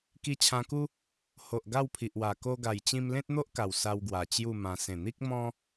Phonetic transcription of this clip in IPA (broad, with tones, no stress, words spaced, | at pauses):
ki˧t͡ɕʰã˧ku˦ | ho˨ʔ ɡa˥˧wpʰi˨ʔwa˨˩ ko˧ɡa˨˩jt͡ɕĩ˧m lẽ˦t̚n̪o˦ʔka˨˩w sa˧wɡwa˨˩ t͡ɕju˥˧mã˧ sẽ˨˩n̪i˦k̚ mɔ̃˦